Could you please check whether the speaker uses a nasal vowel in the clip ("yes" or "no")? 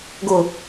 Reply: no